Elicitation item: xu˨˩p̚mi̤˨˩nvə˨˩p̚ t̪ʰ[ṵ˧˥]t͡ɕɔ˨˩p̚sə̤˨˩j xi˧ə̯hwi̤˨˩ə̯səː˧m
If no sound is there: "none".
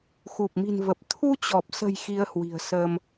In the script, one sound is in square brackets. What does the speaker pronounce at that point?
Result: u˧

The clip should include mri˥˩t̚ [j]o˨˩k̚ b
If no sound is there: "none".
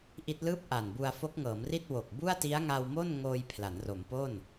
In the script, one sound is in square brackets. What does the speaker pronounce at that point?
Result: w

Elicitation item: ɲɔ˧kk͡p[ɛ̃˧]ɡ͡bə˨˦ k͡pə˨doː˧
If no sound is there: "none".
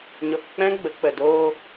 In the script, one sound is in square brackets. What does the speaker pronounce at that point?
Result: ɛ̃˦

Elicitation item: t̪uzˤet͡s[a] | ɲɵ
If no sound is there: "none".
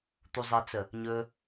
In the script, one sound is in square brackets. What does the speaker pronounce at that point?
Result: ə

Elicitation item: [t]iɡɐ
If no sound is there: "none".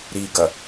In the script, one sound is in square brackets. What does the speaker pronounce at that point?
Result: ɾ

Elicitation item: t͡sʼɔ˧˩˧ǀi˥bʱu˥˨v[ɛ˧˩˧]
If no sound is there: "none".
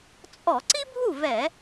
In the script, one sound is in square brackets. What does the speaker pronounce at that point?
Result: ɛ˧˩˧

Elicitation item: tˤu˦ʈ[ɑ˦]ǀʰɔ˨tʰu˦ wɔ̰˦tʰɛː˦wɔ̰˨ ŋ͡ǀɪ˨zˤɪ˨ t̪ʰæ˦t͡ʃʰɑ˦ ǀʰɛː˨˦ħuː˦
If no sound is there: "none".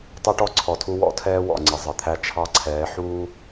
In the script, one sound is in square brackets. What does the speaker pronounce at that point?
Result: ɔ˦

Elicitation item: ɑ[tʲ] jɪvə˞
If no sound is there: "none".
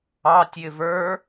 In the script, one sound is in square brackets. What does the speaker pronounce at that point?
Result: tʲ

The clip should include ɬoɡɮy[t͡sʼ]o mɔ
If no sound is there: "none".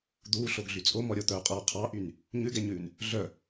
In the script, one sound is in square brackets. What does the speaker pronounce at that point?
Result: t͡sʼ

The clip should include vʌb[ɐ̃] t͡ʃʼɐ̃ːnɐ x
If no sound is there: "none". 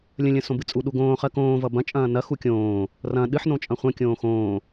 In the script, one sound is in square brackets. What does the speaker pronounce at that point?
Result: ɐ̃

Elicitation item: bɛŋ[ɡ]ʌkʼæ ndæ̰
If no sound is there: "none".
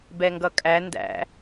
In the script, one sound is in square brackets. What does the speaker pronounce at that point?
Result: ɡ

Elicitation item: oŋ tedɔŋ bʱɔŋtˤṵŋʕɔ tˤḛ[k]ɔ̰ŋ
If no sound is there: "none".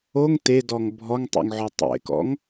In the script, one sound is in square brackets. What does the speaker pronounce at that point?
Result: k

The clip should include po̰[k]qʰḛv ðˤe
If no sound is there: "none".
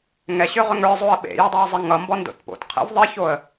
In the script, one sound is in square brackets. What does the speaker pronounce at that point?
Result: t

